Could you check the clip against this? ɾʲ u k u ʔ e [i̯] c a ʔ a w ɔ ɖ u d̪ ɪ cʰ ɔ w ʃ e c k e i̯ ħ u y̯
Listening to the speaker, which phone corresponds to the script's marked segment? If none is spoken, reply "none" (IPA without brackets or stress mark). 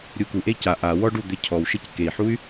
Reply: i̯